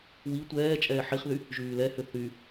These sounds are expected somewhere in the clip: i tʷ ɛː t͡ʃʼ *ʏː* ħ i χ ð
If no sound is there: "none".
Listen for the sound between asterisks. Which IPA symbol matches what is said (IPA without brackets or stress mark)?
ɛː